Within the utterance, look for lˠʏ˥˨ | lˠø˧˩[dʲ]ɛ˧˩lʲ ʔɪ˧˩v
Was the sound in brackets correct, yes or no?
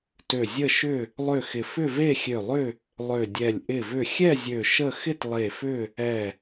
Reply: yes